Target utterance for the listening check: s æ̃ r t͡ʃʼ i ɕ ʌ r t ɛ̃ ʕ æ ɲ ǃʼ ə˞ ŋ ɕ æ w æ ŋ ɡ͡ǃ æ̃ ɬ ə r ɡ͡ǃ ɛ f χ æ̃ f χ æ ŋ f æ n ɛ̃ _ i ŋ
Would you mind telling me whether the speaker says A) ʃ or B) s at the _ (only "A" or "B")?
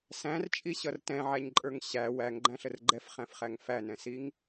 B